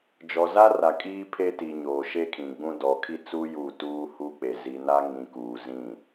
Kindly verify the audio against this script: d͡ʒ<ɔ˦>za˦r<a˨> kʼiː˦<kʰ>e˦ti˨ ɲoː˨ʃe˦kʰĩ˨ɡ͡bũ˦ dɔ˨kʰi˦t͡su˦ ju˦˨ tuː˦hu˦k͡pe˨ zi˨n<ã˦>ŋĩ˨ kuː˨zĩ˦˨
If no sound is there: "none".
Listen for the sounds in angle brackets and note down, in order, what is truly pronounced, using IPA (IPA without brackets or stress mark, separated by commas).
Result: ɔ˨, a˨, pʰ, a˦